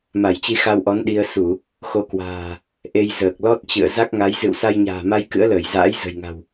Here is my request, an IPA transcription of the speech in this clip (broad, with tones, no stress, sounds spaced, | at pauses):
m a˧˩ j t͡ɕ i˧ x a˧ w ʔ ɔ˨˦ n ɗ i˧ ə̯ s u˧˩˨ | x o˨˦ k w a̤ː˨˩ | ʔ e˧ j z əː˨˩ k̚ l ɔ˦˥ t̚ t͡ɕ ɨ̰˧˨ ə̯ z a˦˥ k̚ ŋ a˨˦ j z ɨ̰˧˨ w s a˧ j ɲ a̤ː˨˩ m a˧ j k ɨ̰˧˥ ə̯ l əː˧˩ j z a̰ː˧˥ j z ə̤˨˩ j ŋ a̤˨˩ w